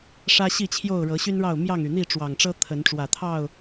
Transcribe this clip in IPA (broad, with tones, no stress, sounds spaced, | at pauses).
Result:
ʂ ä˦ ɕ i˥˨ t͡ɕʰ j o˥˨ ʊ̯ ɻ ɤ˨˦ ɕ y˦ n ɻ ɑ˥˨ ʊ̯ m j ɑ˥˨ ŋ y˩ n̪ i˥˨ ʈ͡ʂ w ɑ˨˩ ŋ ʈ͡ʂ ɤ˦ t̪ʰ ə˨˦ n ʈ͡ʂ w ä˨˩ t̪ʰ ɑ˥˨ ʊ̯